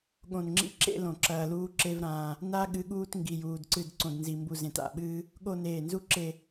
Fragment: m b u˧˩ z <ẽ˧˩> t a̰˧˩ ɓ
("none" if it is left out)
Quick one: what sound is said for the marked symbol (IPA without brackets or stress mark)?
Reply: ẽ˧˩